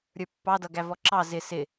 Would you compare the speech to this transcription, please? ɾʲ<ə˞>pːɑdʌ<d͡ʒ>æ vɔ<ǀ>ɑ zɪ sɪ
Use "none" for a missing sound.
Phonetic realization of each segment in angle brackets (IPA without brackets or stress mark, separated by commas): ə˞, ɡ, ǁ